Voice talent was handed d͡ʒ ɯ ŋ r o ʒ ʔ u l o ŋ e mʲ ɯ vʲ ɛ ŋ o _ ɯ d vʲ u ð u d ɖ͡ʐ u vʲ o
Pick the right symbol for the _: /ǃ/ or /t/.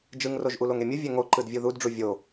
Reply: ǃ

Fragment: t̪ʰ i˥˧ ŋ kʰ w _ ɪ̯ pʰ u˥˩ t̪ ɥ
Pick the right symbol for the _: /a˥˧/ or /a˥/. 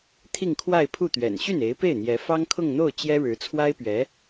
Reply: a˥˧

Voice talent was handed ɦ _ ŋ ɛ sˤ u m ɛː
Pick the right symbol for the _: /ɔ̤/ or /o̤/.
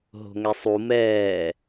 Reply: o̤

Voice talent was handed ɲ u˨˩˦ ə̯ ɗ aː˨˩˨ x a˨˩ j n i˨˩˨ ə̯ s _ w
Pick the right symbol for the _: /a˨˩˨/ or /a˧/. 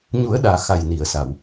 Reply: a˨˩˨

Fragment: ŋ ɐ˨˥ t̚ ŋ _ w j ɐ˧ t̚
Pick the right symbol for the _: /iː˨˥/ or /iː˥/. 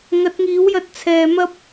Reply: iː˨˥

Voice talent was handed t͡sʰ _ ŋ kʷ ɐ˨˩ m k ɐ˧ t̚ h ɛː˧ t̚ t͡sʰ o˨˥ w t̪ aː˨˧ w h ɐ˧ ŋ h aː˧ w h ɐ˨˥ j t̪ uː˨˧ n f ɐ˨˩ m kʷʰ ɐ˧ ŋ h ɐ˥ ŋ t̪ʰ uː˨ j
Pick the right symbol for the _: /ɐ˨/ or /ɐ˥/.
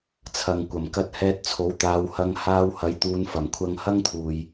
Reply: ɐ˨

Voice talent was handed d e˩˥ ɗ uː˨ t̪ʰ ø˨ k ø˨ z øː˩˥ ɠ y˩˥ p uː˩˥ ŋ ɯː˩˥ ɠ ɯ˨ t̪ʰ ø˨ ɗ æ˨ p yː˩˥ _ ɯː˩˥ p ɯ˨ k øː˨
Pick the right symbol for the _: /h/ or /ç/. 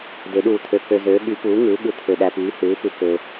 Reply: h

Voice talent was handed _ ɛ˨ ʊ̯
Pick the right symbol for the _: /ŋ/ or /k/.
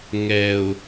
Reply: ŋ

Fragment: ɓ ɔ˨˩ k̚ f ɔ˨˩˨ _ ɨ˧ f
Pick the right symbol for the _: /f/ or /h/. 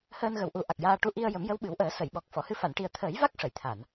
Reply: h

